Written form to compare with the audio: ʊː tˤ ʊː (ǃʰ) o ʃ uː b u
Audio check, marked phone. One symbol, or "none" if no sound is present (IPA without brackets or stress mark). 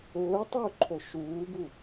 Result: ǃʰ